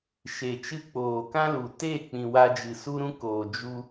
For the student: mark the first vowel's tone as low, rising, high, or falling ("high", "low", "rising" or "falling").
low